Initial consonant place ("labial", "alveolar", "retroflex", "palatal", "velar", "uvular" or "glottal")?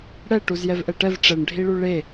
retroflex